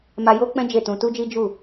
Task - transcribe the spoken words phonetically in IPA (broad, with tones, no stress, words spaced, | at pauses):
ma˧jo˦ k͡pɛ̃˦ d͡ʒe˦˨tũ˧ tu˦d͡ʒi˦ d͡ʒu˦˨